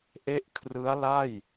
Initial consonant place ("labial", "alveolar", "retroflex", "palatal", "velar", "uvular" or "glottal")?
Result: glottal